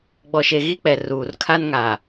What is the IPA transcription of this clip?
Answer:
ɡ͡bɔ˨ʃe˨ ɣi˦k͡pɛ˨ ruː˨r kʰa˦nŋa˨

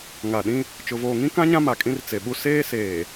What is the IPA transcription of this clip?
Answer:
ŋa˨ɗĩ˦ | t͡ʃʊ˨voː˨ŋĩ˦kã˦ ɲã˦ma˨ kʼĩ˦rt͡se˨ɓu˦ seː˦seː˨

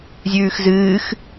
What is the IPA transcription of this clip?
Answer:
zʲʉːxzɨːx

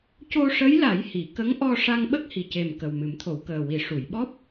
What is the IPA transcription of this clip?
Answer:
co˧ʂə˧˥jla˨˩˦jhi˨˩˨ kə˧˥ŋʔɔ˧ ʂa˧ŋɓə˦˥k̚ hi˨˩ce˨˩m kə˨˩wmɨ˨˩˦mt̪ʰo˨˩˦w kəː˨˩wi˨˩˦ ʂu˨˩˨jɓɔ˦˥p̚

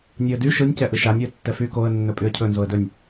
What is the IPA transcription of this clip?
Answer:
nʲɯə̯dy ʃɯnʲ cɛʔɯʃanʲ ɯə̯tːɛfy koə̯ nːɵpʼyə̯cʰɵ nzoə̯dɵnʲ

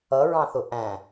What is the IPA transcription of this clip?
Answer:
ʌɹɑ̃θʊ ʔæ̃

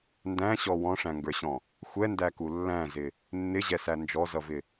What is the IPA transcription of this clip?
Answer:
ndæ̃ɕɔ wɔ̃ʂæ̃ŋɡə˞ɕɔ̃ | xʷɛndæku lːæ̃zɪ | nːɪʑɛsæ nd͡ʒɔzʌvɪ

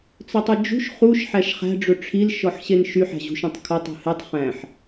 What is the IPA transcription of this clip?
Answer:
t͡sɵtˤød͡ʒṳʃ χuʃ ħæʃχæ̤ ɖ͡ʐɵʈ͡ʂʰil ʃɔħɕenʃy ħæ̤ʑṳʃœ̃tˤkʰotˤ ṳhetˤ χæ̃ħ

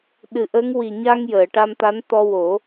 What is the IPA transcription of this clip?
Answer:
ɗɨ˨˩ʔə˧˥ŋ wi˨˩ɲa˧ŋ jəː˨˩˨ʈa˧mt̪a˧˥n t̪ɔ˧wo˨˩˦

